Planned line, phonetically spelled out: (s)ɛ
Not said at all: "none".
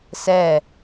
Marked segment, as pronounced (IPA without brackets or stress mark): s